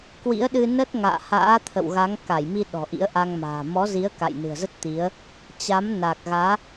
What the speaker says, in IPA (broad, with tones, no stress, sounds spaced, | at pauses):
k w ḭ˧˥ ə̯ ɗ ɨ˧ n ə˦˥ t̚ ŋ a̰ː˧˨ h a̰ː˧˥ t̪ʰ ə̰˧˨ w ɣ a˨˦ ŋ k a˧˩ j m i˧ ɗ ɔ̤˨˩ ʔ ḭ˧˥ ə̯ ʔ a˧ ŋ m a̤ː˨˩ m ɔ˨˦ z i˨˦ ə̯ k a̰˧˨ j n ɨ̤˨˩ ə̯ z ə˦˥ t̚ t̪ i˨˦ ə̯ | t͡ɕ a˨˦ m n a˨˩ k̚ ɣ aː˨˦